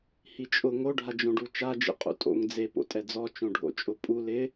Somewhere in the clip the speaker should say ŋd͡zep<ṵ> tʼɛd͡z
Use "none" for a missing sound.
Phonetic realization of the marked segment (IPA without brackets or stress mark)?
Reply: o̰